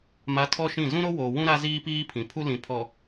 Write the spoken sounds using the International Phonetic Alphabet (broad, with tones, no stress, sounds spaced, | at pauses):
m a˨˦ tʰ ɔ˦ ʃ ĩ˦˨ z ũ˦ ɾ o˦ w oː˨ w ũ˦ ɾ a˦ z iː˦ p iː˦ pʰ ĩ˨ pʰ u˦ l ĩ˨ pʰ ɔ˨